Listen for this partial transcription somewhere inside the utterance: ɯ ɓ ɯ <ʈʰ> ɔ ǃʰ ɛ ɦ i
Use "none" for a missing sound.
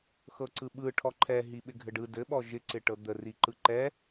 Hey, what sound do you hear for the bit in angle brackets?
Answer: ʈʰ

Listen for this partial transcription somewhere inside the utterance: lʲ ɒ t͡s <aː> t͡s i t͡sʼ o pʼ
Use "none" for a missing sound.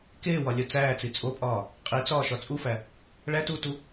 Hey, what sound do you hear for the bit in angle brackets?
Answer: æː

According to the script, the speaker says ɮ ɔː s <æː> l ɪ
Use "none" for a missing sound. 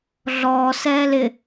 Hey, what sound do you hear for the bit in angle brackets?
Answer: ɛː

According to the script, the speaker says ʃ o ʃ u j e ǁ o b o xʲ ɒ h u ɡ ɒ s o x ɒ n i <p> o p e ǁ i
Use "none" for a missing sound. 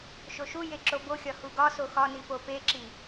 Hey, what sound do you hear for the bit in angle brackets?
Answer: p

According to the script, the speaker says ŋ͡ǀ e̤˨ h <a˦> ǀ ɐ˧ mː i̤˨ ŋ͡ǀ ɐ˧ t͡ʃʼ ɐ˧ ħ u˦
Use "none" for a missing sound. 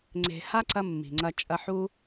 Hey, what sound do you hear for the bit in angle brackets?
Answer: a˦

